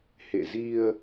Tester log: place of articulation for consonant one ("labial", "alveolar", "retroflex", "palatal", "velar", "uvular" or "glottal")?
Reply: glottal